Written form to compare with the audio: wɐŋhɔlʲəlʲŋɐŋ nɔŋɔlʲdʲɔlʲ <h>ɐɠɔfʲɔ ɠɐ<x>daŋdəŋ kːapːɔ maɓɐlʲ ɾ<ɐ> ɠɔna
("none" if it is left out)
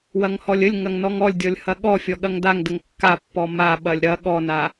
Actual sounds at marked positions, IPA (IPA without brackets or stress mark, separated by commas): h, ŋ, ɐ